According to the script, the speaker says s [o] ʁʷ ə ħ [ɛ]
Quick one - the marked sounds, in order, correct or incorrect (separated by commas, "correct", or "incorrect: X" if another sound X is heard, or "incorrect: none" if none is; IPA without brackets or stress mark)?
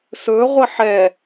incorrect: ɵ, correct